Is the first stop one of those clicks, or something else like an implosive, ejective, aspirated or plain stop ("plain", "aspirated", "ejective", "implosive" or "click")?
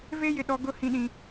implosive